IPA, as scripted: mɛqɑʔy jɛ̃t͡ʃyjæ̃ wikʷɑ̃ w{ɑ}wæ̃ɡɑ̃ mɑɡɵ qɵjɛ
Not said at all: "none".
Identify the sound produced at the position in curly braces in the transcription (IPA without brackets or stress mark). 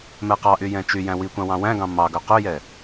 ɑ̃